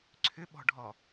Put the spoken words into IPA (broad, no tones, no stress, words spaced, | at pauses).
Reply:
ǀʰʏɓɔ̤ɖʱɔ